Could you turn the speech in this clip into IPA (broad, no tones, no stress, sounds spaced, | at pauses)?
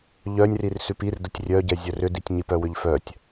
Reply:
ʎ œ nʲ r i r s ʉ p i r d ə tʲ rʲ œ ɟ ɛ zʲ œ r ʏ d i tʲ ɲ i p œ w ʏ ʎ f œ tʲ